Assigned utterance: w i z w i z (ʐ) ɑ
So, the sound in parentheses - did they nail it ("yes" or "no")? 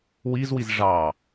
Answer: yes